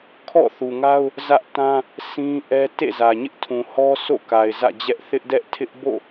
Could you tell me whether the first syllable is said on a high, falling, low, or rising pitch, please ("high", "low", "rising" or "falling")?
falling